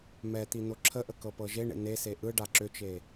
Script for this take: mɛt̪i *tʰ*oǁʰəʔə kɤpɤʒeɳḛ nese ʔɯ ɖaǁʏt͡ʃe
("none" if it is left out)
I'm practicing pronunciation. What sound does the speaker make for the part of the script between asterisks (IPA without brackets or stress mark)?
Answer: n